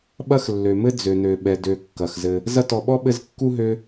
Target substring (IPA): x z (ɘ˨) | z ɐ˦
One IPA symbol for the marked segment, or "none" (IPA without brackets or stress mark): ɘ˨